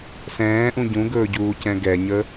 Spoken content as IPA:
s ɛ̃ː ʔ ũ ɟ ũ ɡ ɵː ɟ uː c ɛ̃ ɡ ɛ ɲ ə

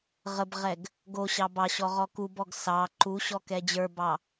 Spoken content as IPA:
ʁ ə b ʁ ɛ ɡ | ɡ o ɕ ɑ b ɑ ɕ ɔ ʁ ɔ k u b ɔ ɡ s ɑ ǃ u ɕ ɔ k ɛ d͡ʑ ə˞ b ɑ

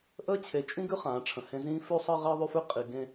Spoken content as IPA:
ʔ əː˦ t͡ɕʰ e˨˦ t͡ʃʼ ĩ˦ ɡ ʉ˦ χ ãː˨˦ ʈ͡ʂʰ ə̃˨ h ẽ˦ z ĩː˦ f ʉ˦ sˤ əː˦ ʁ əː˦ ðˤ ʉ˦ f ʉ˦ qʼ i˨ ɡ ẽ˦

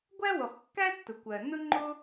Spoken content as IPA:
ɡʷ æ˥ w ʊ˩ χ kː æ˥ tː ʊ˩ kʷ ɜ˩ n ʊ˥ ŋ͡ǃ ʊ˥

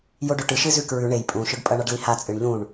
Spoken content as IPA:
j o ɖ ɵ ʈ ɨ ʃ ɨ z ʉ k ɹ ʉ ɳ e j pʼ ũ ʃ ɵ ɖ pʼ ɐ ɳ a ɖ l i h a t͡sʼ ɨ ɳ ʎ ũ ɳ

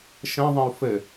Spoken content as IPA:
ʃ ə̃ ðˤ ə̃ u̯ f ɘ

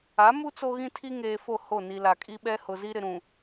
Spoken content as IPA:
a˨˦ m u˦ t͡s o˦ ɣ ĩ˦ tʰ i˦ ŋ eː˨ f o˦˨ h o˦˨ n i˨ l a˨ kʼ i˦ ɓ ɛ˦ h ʊ˨ z i˦ ɾ ɪ˨ ɾ ũ˨

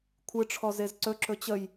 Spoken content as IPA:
kʷʰ ɨ ʈ͡ʂʰ ɔ z e z ǀ ɵ ǁ ɵ t͡ɕ ə j

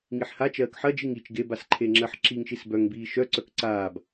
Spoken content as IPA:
ŋ i ħ h a t͡ʃ ɜː k ħ ɜ d͡ʒ i ŋ i t͡ʃ ɡ e b a s ǃʰ e ŋ͡ǁ ɜ ħ ǁ i ŋ ʃ i s b œ ŋ b iː ʃ œ ǀ œ k ǀ aː b

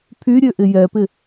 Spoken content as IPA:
pʰ y ɾʲ ø ʔ ɪ j ɛ p ɪ

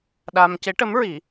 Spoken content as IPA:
ɗ a˧ m c e˧˥ ʈ ə˧˥ m ɹ i˨˩˦

